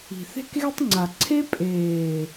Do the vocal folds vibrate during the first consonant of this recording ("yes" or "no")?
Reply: no